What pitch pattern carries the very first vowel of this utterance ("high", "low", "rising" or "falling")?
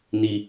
low